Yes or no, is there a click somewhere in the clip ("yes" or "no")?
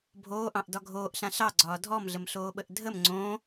yes